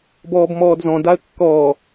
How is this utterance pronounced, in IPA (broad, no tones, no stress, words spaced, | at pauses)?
bɔːbmɔːdzɔ̃ daə̯kːɔː